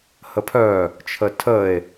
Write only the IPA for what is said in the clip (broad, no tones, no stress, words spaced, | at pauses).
həpʰœ | t͡ʃʰətʰəe̯